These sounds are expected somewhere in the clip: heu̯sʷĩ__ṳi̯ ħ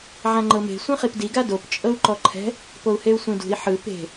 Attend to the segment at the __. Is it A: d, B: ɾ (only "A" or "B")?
A